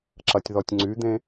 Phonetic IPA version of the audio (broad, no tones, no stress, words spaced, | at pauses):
ǁɐtʲðɔtʲŋ͡ǀyd̪ẽ